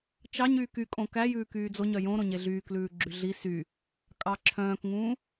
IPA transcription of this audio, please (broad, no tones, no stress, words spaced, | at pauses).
t͡ʃɑɲyːk ykʼõ kæjʉːkyː d͡zoɲœ jõɾõɲe ɮyːklʉː ɡ͡ǁyɮi sy | kʼɑǁʰœ̃ːkŋũː